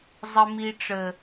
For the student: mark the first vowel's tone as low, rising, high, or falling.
low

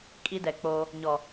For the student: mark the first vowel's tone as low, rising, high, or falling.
high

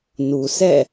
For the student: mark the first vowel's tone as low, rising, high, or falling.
low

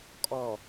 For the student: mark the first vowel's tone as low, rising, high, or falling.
low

